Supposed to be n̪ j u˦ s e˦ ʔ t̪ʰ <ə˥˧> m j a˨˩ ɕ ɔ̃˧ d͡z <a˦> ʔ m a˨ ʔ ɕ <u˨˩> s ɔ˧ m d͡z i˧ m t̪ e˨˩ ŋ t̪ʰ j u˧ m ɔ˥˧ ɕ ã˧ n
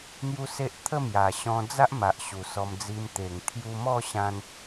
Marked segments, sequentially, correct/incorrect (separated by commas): correct, correct, correct